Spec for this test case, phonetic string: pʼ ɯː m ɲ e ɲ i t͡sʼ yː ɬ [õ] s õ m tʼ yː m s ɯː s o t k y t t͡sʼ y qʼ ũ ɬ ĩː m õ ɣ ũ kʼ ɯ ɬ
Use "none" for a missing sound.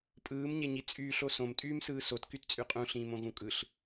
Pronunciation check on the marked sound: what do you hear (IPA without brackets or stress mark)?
o